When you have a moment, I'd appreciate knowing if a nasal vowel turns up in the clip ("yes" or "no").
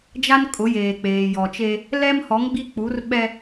no